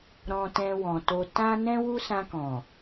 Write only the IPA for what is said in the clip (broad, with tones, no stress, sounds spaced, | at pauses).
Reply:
ɾ ɔ̃˧ t ɛ̃˧ w ɔ̃˨ t o˧ t ã˦ n ɛ̃˦ w u˦ s ã˧ k ɔ̃˨